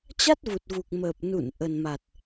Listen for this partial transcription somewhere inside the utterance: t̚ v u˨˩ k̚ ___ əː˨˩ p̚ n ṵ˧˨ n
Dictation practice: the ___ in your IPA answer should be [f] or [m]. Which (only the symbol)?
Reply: m